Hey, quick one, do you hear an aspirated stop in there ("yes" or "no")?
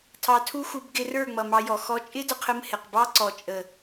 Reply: yes